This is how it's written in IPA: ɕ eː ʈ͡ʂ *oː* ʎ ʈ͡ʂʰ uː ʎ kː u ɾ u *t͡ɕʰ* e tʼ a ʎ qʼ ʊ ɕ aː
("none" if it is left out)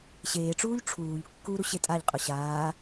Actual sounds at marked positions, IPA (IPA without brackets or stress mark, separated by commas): uː, ɕ